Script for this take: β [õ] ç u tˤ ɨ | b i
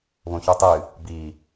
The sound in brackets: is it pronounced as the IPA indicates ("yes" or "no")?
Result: yes